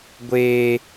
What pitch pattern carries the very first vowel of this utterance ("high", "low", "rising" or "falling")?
high